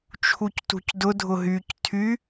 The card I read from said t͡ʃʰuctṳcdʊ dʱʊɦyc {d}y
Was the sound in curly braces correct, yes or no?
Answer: no